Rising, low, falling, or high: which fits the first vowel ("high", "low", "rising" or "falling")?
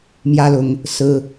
high